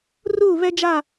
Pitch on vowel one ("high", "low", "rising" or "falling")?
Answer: falling